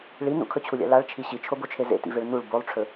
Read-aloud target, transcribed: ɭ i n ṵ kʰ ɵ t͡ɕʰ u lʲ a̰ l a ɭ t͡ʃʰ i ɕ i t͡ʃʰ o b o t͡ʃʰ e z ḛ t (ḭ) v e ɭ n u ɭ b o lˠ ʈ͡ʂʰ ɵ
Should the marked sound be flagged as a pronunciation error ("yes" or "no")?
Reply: no